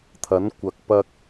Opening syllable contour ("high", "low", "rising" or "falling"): rising